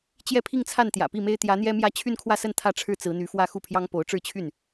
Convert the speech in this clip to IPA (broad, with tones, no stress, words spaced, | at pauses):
t͡ɕjɛ˥˧pʰi˥˧ŋt͡sʰa˥˩n t̪jä̰˨˩pi˥˩me˥ɪ̯ t̪jä˧˥n̪jɛ˥mjä˥˧ t͡ɕʰy˥˧nkʰwä˥˧sə˥˧n t̪ʰä˥˧ʈ͡ʂʰɻ̩˥˩ t͡sɹ̩˧˥n̪y˧˥fwä˥˧ xu˥˩pʰjɑ˥ŋpo˧˥ʊ̯ ʈ͡ʂɻ̩˥˧t͡ɕʰy˥˩n